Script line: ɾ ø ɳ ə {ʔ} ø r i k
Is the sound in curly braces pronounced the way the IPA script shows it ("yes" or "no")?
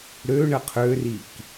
no